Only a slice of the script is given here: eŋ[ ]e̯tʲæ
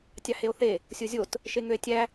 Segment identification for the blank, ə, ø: ø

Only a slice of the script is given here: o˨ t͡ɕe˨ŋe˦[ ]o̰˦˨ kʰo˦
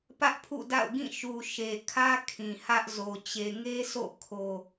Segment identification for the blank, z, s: s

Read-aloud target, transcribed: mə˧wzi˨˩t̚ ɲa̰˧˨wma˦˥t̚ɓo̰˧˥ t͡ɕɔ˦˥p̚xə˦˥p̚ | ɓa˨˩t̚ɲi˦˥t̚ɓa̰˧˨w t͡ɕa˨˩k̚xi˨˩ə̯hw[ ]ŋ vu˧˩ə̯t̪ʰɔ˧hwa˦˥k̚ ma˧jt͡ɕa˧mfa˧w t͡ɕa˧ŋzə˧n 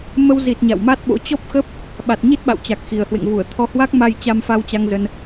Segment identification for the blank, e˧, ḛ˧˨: ḛ˧˨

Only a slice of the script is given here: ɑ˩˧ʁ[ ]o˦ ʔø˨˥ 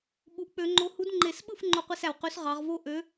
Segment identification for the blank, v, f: v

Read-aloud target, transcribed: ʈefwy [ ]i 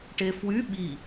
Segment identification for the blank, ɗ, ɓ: ɓ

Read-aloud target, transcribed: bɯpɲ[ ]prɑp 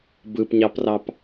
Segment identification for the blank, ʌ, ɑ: ɑ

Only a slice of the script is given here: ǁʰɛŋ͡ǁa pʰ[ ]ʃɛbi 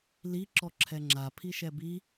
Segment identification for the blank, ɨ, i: i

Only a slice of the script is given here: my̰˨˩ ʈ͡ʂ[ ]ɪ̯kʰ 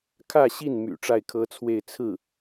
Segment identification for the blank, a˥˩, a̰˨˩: a˥˩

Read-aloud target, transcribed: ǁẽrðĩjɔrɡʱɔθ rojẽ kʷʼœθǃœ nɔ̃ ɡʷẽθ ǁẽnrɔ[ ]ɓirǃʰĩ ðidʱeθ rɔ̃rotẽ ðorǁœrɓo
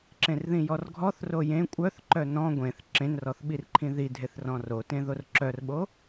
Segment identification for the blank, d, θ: θ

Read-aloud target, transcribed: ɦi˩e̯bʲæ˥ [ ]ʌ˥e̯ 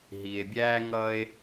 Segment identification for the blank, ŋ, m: ŋ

